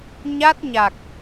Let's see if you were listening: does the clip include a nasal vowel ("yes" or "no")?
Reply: no